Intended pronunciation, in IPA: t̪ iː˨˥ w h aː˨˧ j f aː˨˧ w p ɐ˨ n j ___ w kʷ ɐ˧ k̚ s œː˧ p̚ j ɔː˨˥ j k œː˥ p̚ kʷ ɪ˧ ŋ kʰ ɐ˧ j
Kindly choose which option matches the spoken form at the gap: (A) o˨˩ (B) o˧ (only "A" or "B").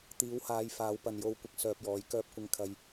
B